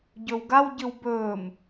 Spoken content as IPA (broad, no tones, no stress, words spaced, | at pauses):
ɟɵwɡawɟɨw bɵːm